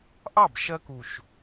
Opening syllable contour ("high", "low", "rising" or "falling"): falling